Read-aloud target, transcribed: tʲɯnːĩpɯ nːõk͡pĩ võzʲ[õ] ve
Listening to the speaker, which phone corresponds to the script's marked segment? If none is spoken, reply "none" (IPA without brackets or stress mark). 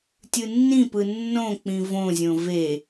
õ